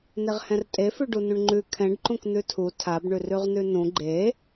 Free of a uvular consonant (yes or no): no